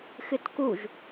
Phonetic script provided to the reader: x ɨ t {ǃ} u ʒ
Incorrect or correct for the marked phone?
incorrect: k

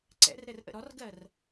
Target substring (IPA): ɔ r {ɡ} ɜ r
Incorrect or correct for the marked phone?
correct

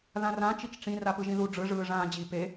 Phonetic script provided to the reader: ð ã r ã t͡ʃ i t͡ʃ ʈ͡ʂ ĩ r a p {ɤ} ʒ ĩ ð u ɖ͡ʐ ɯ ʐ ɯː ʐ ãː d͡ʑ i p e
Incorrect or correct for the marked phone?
incorrect: ɯ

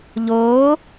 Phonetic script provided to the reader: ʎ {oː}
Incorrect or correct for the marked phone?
correct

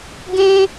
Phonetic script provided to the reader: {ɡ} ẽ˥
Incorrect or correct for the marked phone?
correct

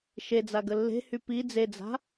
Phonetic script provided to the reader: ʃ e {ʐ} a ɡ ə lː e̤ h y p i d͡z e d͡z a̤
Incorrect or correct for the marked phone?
incorrect: d͡z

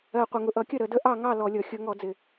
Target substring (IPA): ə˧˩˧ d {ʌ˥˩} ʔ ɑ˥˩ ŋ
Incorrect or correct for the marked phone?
incorrect: ə˥˩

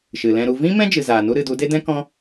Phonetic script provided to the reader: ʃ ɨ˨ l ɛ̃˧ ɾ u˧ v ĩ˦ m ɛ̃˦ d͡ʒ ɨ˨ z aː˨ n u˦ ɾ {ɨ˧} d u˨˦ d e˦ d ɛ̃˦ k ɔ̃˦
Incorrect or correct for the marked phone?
correct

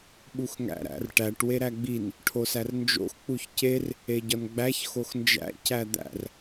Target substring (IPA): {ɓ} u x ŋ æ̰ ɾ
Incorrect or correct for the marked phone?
correct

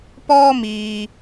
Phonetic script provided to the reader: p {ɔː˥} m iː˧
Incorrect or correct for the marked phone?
correct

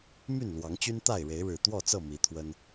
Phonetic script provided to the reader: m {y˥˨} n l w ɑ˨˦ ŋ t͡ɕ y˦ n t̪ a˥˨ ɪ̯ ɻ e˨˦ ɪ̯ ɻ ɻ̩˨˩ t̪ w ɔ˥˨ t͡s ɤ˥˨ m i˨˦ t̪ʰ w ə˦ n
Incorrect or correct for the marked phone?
correct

